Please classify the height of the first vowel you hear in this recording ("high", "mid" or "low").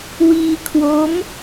high